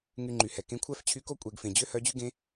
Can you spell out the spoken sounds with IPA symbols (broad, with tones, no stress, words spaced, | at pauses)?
ŋy˧ŋ͡ǃy˩hɛ˩ kẽ˧˥kʷʰæ˥ft͡ɕʰy˧˥ko˥ kʷʼe˩˧ɡfẽ˩ d͡ʑø˥hœ˧˥d͡ʑy˥ɡẽ˧˥